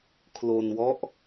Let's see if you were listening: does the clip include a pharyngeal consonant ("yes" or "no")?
no